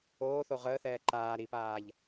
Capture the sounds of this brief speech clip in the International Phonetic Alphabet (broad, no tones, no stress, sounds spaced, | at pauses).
oː θ o ʁ əː θ ɛː ǃ aː ɾ i p aː ʎ